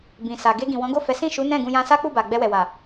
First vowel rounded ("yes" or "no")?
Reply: no